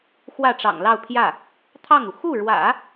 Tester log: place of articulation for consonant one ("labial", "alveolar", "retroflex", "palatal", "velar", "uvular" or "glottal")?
velar